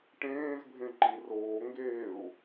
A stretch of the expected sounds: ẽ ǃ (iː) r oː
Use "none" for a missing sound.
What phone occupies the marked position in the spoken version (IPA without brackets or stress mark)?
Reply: i